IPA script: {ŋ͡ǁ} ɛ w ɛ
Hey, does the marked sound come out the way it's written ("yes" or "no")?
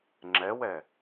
yes